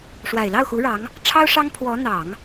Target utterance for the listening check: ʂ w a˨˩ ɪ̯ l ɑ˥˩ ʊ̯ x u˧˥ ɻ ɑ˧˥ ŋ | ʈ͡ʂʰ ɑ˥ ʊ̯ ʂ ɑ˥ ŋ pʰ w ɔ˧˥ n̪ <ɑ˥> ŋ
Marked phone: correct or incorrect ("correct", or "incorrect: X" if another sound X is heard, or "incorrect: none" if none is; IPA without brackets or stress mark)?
incorrect: ɑ˨˩˦